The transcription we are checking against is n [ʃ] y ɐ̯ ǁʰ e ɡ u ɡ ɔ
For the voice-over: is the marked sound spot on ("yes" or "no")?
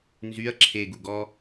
no